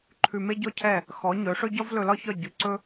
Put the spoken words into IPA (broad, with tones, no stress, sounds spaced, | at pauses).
ǃʰ ʉ˧ m e˥ ɟ ɔ˥ cʰ ɛ˥˩ | x ɔ˩˥ ɲ ɵ˩˥ ʂ ɵ˥ ɟ ɒ˥ v l ɵ˧ l ɒ˥ ç ɒ˥˩ ɟ ʉ˩˥ ǀ ɵ˥